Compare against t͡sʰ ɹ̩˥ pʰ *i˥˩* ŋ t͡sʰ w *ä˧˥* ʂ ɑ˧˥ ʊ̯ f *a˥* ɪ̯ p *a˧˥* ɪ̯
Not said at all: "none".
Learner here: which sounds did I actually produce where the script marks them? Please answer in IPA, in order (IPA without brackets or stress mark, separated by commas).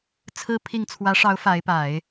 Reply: i˥˩, ä˧˥, a˧˥, a˨˩˦